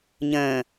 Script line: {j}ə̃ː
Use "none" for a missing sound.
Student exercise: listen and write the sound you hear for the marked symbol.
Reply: ɲ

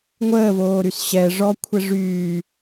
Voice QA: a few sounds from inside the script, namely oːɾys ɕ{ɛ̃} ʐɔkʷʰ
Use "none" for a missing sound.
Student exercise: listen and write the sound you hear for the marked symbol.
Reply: ɛ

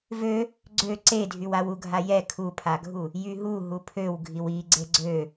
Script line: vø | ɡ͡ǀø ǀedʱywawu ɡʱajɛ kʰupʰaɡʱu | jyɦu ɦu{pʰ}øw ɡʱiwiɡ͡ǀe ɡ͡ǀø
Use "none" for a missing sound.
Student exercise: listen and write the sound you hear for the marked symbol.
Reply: pʰ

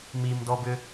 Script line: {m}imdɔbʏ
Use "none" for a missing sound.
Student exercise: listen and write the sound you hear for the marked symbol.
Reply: m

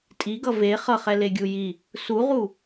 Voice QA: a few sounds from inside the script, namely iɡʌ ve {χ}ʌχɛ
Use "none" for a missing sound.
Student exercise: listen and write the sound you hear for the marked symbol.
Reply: χ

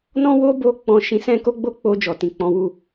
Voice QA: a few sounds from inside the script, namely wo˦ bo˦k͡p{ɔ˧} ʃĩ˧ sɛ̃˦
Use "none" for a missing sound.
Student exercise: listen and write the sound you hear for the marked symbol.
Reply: ɔ̃˧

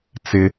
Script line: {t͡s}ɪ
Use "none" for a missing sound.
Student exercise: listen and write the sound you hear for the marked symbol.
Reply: t͡s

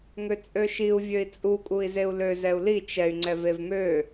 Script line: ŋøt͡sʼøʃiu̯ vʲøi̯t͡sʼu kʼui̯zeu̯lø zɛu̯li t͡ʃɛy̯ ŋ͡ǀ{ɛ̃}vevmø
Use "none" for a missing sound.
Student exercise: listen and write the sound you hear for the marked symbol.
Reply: ɛ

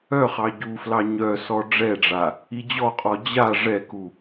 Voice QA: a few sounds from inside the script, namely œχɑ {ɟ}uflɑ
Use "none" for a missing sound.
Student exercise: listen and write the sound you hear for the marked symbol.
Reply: ɟ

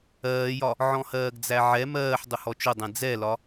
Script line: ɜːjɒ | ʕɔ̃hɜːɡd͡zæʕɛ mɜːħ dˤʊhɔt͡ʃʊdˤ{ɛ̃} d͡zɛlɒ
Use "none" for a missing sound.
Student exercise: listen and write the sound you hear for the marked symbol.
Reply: ɛ̃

